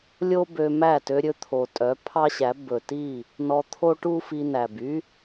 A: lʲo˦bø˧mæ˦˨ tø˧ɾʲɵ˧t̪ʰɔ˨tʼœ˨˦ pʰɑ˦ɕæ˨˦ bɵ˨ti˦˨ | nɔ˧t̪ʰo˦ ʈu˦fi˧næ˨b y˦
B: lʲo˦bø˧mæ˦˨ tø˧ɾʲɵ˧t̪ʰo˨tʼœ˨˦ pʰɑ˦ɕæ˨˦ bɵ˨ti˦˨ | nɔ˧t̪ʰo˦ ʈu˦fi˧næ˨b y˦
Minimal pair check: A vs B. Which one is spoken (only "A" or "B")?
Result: B